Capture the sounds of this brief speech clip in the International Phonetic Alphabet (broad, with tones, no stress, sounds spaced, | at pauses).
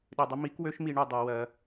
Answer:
ɗ ø˧ dˤ ə˥ m i˧˥ k w ø˧˥ ʃ m i˩˧ ɳ u˩ dˤ ɜ˩˧ w ɜ˩˧